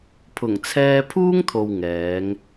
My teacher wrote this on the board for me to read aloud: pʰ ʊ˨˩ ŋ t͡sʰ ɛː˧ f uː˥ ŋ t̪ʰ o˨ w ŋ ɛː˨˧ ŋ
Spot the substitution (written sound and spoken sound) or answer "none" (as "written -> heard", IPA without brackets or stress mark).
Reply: f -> pʰ